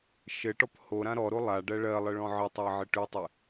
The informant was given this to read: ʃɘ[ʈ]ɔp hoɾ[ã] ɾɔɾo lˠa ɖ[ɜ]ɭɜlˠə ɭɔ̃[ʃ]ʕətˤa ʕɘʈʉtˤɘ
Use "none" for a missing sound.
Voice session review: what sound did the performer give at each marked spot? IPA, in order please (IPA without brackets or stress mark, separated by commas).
ʈ, ã, ɜ, none